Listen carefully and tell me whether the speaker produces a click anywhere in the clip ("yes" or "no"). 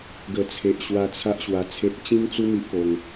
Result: no